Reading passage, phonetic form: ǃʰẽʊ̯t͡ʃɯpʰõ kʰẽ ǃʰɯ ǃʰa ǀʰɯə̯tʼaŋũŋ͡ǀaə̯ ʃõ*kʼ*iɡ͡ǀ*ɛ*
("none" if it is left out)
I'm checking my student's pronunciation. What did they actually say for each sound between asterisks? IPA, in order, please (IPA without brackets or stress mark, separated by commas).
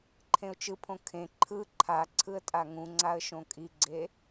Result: kʼ, e